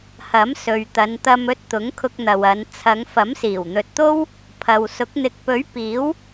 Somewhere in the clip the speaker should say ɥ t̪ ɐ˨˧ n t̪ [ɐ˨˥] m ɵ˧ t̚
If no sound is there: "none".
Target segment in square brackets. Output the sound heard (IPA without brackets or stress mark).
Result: ɐ˧